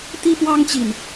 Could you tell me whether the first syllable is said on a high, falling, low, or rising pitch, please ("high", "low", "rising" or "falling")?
high